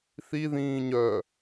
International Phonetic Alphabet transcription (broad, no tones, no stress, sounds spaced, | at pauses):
θ i ð ĩː ɲ œ